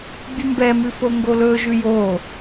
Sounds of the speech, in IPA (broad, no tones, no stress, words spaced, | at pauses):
bʲʉmbɛmʉ foŋɡolɵʒʉ jo